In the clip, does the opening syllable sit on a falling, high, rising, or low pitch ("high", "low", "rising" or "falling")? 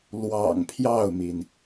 low